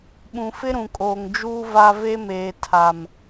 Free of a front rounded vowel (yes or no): yes